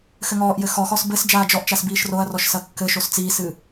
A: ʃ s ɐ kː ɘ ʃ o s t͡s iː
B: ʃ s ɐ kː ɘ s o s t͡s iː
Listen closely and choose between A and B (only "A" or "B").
A